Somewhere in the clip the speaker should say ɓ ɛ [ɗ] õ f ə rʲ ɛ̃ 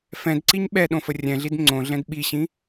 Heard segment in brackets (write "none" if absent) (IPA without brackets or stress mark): ɗ